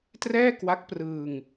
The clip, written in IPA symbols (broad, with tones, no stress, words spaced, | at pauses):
trɛː˥˩kwa˦˥k̚prɯː˧ŋ